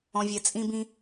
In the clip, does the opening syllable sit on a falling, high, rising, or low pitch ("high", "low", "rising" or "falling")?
low